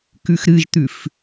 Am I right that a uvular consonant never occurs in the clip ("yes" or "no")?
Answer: yes